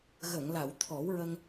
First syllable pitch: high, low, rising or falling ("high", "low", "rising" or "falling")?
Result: low